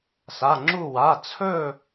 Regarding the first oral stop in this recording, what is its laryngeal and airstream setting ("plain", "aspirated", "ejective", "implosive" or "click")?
click